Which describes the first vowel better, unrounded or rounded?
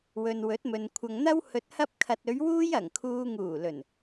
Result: rounded